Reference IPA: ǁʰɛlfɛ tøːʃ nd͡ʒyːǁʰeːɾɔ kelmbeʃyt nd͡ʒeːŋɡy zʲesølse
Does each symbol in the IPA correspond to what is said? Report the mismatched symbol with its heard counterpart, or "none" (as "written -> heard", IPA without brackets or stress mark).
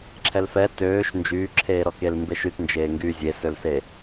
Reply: none